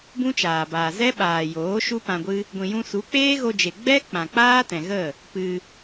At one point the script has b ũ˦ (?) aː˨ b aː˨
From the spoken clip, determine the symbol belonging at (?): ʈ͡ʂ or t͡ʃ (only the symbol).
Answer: t͡ʃ